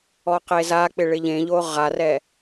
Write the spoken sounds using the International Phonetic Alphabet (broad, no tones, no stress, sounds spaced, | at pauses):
ɔ q e z a k͡p ɪ ɭ ɪ ʎ ẽ ʎ o ʁ a r ɛ